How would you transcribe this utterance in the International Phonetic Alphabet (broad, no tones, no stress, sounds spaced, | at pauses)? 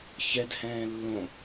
ç ɛ d h ɛ̃ː lː õ